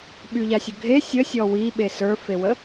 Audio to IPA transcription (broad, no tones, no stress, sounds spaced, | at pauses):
ɓ y ʎ a sʲ ə ɡʱ e sʲ ə sʲ ɔ w i ɓ e s ə˞ f e w ə